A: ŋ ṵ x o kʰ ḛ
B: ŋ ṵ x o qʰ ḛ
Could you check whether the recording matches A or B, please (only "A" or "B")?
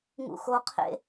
B